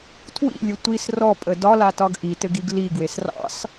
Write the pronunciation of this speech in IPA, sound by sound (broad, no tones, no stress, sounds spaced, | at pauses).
tʰ w ḭ lʲ ɘ tʷ i s r ɔ pʼ ə d ɒ l a t ɒ ɡ ʔ i t ɘ ɡ i ɡ l i ɡ w e s r ɑ̰ s